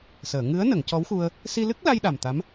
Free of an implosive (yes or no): no